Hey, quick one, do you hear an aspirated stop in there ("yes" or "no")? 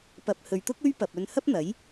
no